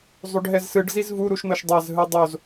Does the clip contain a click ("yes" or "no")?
no